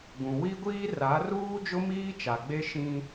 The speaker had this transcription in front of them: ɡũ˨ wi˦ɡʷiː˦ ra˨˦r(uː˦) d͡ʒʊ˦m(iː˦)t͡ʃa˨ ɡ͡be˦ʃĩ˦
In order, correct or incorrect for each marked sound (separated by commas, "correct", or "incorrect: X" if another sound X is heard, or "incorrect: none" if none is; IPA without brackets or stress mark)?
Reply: correct, correct